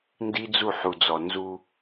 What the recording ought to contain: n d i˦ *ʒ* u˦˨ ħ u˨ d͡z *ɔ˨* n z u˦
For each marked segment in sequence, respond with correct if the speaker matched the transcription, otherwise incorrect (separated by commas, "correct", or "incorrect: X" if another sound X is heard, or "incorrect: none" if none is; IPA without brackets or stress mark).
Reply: incorrect: d͡z, correct